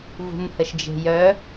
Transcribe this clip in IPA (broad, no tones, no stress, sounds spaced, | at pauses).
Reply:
v ṳ m h ə ʃ d͡ʒ e̤ j œ